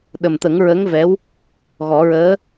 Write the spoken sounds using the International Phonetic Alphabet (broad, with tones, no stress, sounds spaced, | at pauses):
ɗ ə˨˩ m t̪ ə˨˩˦ ŋ ɹ ə˧˥ ŋ v ɛ˧˥ w | ɣ ɔ˨˩˦ ɹ əː˧˥